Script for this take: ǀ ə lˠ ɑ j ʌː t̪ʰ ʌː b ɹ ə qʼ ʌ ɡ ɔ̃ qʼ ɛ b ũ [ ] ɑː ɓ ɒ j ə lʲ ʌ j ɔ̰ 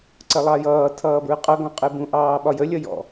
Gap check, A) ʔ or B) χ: A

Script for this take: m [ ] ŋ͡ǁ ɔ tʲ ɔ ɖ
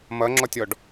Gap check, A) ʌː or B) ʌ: B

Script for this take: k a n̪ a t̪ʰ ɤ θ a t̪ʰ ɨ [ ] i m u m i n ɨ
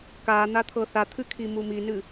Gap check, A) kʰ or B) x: A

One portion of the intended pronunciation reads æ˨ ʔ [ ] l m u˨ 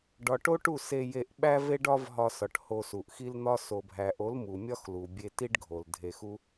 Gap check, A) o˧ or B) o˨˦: B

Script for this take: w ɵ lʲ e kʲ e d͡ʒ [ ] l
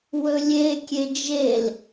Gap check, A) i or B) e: B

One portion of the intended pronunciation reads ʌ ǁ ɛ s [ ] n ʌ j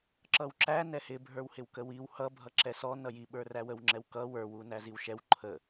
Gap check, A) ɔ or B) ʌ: A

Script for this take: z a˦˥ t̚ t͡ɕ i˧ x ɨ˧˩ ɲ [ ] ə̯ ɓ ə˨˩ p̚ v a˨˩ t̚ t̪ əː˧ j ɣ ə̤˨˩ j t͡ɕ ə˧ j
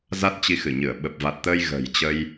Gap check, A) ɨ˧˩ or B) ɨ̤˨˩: A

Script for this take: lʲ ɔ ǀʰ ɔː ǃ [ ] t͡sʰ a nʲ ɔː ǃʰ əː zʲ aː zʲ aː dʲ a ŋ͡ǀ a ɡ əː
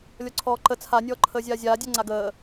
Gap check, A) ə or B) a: A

